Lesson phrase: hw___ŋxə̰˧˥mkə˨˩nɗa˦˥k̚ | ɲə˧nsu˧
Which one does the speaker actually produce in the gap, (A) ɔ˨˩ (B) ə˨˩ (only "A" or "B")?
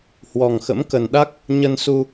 A